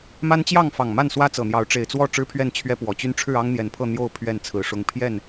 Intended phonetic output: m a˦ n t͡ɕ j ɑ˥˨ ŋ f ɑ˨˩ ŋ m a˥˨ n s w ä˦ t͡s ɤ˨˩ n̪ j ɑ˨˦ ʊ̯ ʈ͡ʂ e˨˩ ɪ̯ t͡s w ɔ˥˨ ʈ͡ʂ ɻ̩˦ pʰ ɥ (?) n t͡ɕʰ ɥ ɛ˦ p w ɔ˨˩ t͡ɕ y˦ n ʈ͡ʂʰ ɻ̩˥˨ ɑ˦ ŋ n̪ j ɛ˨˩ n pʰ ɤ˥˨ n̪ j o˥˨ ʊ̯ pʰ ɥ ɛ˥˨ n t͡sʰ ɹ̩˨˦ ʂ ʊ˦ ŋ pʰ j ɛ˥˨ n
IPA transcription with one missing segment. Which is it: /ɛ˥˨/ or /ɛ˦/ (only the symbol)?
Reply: ɛ˥˨